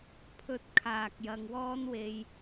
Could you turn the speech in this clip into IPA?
pʰ ɵ˧ t̚ kʰ aː˨ k̚ j ɐ˧ ŋ w ɔː˥ n w e˧ j

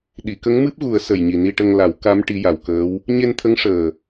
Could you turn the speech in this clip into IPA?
ɗ i˨˩˨ k ə˧˥ ŋ m ɨ˦˥ p̚ ɣ u˨˩˦ ə̯ s ə˨˩ j ɲ i˨˩ n i˧ ʈ ə˧ ŋ l a˨˩˦ w k a˧˥ m ʈ i˧˥ j a˨˩ w k əː˧˥ w | ɲ e˧ n t̪ʰ ə˧˥ ŋ ʂ əː˨˩

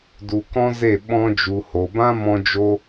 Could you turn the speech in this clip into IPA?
d u˧ k ɔ̃˦ z e˦˨ ɓ ɔ̃˧ d͡ʒ u˨ h o˨ b ã˧ m ɔ̃˧ d͡ʒ o˧

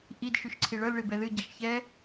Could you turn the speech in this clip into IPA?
ʔ i d ʃ ʉ ʃ ǀʰ i ɭ ɤ l ɭ i b ɛ ð ɨ ɟ ɛ ʃ ç ɛ

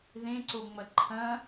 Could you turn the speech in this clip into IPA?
ð ẽ ǀ o ŋ͡m ɐ ǃʰ ɐ̃

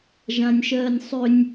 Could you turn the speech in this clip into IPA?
ʒ ã nʲ ʃ ɜː nʲ sˤ ʏ nʲ

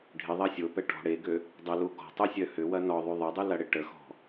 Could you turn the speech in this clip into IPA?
ɖʱ ɪ ðˤ ɐ sʲ o p ɛ ʈ ɔ̤ ɽ e ɡ ø | dˤ ə l u ɡ ɔ̤ tˤ u sʲ œ h ʏ w ɐ n ɔ ðˤ y ðˤ ə dˤ y l ɐ ɽ ɪ ʈ ə x ɔ̤

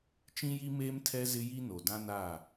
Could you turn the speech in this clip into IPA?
t͡ʃ ĩ˦ j i˦ m eː˦ m tʰ ɛ˦ z ɪ˦ j i˦ n o˨ d ã˦ n a˦˨

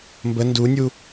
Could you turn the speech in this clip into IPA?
m b ə n d u nʲ u

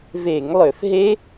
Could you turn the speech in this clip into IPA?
v e˧˩˧ ŋ lˠ ø˧˩˧ f ɦ e˦˥

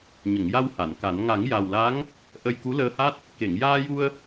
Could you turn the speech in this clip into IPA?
ɲ ə˨˩˨ ŋ j a˧ w h a˨˩˨ n k a˨˩˦ n ŋ a˨˩˦ ŋ j a˨˩ w l a˧˥ ŋ | ʔ ə˧ j k u˧˥ l əː˧ h a˦˥ t̚ | k e˨˩˨ ŋ j aː˧ j u˧ ə̯

